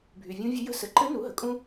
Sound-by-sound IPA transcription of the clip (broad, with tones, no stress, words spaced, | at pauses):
bʱy˩vʲũ˧˥vʲɘ˧˥ jə̤˥sə˩˥ ǃɘ˧˥ nu˩˥ɦə˩ kʼũ˥